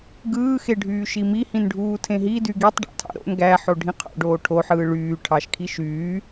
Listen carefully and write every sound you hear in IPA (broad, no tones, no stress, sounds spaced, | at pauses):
ɡ ɯː x e ɖʱ yː ʃ i m i h ĩ n ɖʱ uː tʰ ẽ ɦ i d y ɡ i tˤ ɖ ɑ̰ tʰ ɑ̰ ɾ o̰ n ɡ æ ħ o ɖʱ ĩ qʰ o̰ ɖ oː ʈʰ o ħ ɯː ɭ yː ʈʰ ɑ ʃ kʰ i ʃ yː